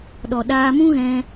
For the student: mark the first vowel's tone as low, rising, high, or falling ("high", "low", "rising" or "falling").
low